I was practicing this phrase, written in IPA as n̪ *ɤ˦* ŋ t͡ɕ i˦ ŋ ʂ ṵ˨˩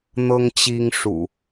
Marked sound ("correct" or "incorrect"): correct